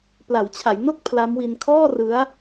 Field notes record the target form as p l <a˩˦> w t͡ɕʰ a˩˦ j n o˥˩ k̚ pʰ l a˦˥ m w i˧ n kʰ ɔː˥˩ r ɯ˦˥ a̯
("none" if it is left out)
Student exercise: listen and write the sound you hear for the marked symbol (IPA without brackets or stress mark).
a˩˦